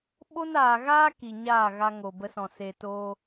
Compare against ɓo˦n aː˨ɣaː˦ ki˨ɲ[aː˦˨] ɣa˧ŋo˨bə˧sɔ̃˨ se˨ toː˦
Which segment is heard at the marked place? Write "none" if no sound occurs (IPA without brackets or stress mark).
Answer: aː˦˨